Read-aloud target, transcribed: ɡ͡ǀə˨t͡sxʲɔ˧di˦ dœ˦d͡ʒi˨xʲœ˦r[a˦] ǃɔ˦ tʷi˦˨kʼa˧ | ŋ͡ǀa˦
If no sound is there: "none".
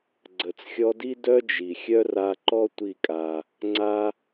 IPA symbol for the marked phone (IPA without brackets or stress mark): a˧